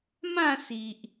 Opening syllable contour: falling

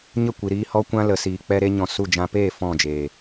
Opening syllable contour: falling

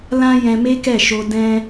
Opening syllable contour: high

